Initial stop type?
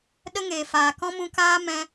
implosive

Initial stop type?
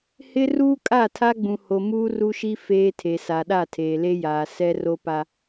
ejective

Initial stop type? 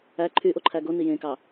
click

